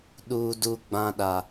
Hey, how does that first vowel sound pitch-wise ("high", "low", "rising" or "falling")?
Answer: low